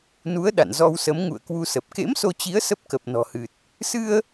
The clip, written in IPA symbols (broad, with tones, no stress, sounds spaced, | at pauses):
n u˨˦ ə̯ ɗ a̰˧˨ n z ɔ˧ w s ə˨˦ m ŋ ṵ˧˨ ə̯ k w u˧ s ə˨˩ p̚ k ḛ˧˥ m s o˧ t͡ɕ i˨˦ ə̯ s ə˦˥ p̚ k ə˨˩ p̚ n ɔ̤˨˩ h ɨ˨˩ t̚ | s ɨ˧ ə̯